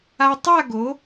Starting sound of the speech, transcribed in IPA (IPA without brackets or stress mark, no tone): a